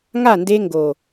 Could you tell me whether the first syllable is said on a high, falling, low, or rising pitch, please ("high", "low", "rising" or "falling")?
falling